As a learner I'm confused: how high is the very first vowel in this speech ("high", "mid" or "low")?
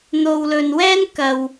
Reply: mid